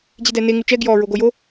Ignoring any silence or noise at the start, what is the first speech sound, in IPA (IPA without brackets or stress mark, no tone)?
d͡ʑ